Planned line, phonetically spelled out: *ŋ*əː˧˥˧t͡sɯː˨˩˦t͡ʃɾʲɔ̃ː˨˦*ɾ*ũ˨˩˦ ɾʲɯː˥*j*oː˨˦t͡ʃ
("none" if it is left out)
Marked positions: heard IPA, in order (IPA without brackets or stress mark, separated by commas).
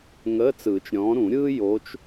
ŋ, ɾ, j